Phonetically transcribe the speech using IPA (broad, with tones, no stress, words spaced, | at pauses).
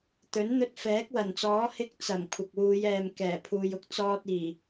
t̪ɵ˨˥nn̪ɵ˧t̚ fɛː˨˥k̚wɐ˨˩nt͡sɔː˨˥ hɪ˧k̚ t͡sɐ˨˩m kʷʰɐ˨k̚wuː˨˧jɛː˨m kɛː˨˩pʰuː˨jʊ˥k̚ t͡sɔː˧t̚iː˨˩